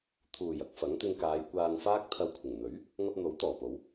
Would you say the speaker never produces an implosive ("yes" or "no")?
yes